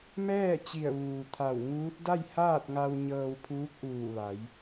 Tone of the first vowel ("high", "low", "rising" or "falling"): falling